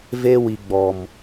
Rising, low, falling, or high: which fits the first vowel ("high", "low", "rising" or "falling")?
high